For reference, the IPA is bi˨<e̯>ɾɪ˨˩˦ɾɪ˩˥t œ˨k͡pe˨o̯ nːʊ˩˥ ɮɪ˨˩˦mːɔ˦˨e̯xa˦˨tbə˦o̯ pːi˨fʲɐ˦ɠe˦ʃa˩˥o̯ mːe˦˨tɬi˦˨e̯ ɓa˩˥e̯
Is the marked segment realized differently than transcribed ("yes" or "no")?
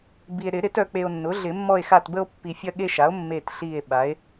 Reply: no